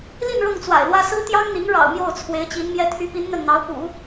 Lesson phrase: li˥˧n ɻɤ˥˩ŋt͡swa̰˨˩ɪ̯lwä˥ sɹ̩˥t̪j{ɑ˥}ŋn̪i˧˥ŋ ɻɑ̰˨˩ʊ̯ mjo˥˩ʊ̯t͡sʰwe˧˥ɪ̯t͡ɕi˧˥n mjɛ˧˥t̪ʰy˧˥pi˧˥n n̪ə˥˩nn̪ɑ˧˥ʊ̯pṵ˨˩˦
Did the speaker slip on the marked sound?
no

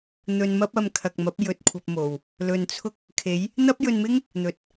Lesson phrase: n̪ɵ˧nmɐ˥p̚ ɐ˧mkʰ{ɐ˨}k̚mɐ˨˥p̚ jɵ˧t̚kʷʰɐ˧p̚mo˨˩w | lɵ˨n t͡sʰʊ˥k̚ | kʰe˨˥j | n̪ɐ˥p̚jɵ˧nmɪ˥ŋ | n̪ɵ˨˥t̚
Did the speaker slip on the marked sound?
no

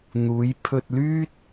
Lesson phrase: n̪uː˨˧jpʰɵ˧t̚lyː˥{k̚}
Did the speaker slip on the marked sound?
yes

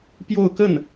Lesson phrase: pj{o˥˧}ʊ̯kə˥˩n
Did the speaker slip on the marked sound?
no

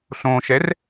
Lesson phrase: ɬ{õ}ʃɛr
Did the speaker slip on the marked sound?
no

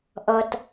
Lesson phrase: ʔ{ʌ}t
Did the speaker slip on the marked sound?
no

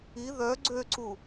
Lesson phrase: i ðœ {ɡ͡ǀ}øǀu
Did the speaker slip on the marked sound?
no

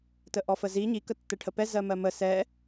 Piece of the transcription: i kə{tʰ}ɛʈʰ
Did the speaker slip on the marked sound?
yes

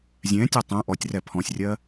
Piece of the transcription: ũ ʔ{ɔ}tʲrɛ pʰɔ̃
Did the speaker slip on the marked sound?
no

